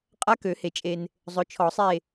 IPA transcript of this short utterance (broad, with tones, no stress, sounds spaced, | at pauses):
qʼ a˧˥ k ø˨˩˦ h e˨ t͡ʃʼ e˨ n | zˤ ɵ˩˥ t͡ʃʰ ɔ˨˩˦ sˤ e˦˨